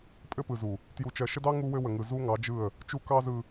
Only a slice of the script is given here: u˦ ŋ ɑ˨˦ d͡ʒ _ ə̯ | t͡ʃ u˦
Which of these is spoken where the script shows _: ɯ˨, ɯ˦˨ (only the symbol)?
ɯ˦˨